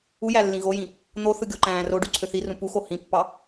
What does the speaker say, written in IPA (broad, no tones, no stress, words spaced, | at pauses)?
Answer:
ujæ lːĩɣojĩ | n̪oθɯ ɡʲoǃæ̃ːroɖy ǀʰøθirũ puxo hĩpːɑ